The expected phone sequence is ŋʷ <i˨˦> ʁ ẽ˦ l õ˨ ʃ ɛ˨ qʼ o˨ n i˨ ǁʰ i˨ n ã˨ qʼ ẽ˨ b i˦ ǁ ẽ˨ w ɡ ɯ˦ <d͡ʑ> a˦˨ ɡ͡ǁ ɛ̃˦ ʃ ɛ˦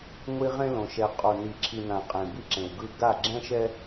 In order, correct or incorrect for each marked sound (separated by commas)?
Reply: incorrect, incorrect